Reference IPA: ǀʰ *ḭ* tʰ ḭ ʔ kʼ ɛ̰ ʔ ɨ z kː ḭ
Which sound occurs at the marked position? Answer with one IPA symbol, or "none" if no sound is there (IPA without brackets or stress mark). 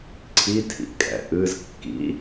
i